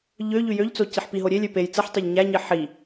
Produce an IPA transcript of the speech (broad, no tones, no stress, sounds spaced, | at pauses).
ʎ ø ʎ y j ø ʎ t͡s o c i ħ p i ɦ o ɾʲ e lʲ ø p e j t͡s ɯ ħ tˤ ø ʎ ɲ æ ɲ i ħ i